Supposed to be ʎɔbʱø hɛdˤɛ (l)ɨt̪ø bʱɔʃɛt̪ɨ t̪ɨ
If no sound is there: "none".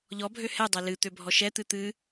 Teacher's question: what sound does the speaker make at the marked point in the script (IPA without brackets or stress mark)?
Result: l